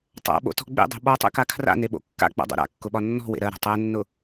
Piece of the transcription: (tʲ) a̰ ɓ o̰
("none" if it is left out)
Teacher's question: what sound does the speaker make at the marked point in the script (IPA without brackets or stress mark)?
tˤ